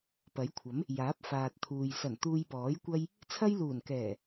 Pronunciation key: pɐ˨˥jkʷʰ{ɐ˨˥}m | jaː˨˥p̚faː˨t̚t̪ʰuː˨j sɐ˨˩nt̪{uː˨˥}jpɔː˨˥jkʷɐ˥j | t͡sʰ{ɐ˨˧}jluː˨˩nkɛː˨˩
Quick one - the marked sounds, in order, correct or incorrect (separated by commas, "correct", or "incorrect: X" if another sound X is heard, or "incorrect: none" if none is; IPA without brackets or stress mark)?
correct, incorrect: uː˧, incorrect: ɐ˥